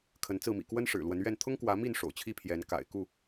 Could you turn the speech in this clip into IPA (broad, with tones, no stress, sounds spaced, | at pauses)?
kʰ ə˨˦ n t͡s ɹ̩˥˨ m ḭ˨˩ k w ə˦ n ʂ ɻ̩˨˩ l w ə˨˦ n ɥ ɛ˥˨ n t̪ʰ ʊ˦ ŋ k w ä˨˦ m i˥˨ n ʂ o̰˨˩ ʊ̯ t͡ɕʰ i˥˨ pʰ j ɛ˨˦ n k a̰˨˩ ɪ̯ k u˥˨